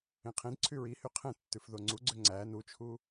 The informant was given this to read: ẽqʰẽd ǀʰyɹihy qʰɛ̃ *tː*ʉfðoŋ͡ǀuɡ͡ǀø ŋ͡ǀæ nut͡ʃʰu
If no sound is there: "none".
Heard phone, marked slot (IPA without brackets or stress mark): tː